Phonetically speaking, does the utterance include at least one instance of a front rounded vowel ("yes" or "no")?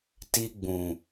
no